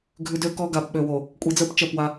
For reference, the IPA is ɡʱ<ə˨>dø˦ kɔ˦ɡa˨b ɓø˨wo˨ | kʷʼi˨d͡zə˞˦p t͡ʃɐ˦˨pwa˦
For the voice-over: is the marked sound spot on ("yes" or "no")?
no